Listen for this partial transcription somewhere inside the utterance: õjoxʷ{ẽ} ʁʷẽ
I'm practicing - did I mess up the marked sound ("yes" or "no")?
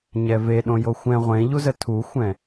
yes